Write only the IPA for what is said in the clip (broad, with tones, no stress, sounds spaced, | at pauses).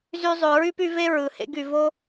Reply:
z y˧ zˤ ø˩ ɹ y˥ p y˧ v e˥ ɹ ɯ˩ h ḛ˧ ɡ y˩ v o˥